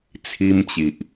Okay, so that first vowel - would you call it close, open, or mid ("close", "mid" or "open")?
close